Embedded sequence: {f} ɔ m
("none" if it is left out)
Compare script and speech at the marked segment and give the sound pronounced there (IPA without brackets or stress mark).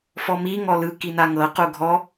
f